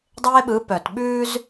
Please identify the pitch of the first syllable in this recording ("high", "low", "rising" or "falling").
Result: high